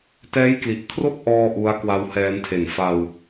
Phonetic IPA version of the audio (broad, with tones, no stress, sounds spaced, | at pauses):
t ɛː˦˥ j k l i˨˩ ʔ kʰ r o˥˩ k̚ ʔ ɔː˥˩ ʔ u˦˥ a̯ k w a˧ w h ɛː˧ n tʰ e˨˩ n f a˧ w